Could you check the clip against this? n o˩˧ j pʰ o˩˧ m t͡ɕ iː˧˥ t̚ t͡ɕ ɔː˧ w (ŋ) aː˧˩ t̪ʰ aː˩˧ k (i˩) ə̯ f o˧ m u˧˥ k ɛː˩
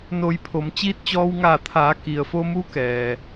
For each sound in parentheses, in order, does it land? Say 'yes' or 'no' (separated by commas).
yes, yes